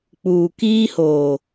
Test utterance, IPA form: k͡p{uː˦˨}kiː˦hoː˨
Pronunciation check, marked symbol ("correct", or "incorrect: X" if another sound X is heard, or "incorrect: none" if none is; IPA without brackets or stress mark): incorrect: uː˨